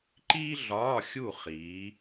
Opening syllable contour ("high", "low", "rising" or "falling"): high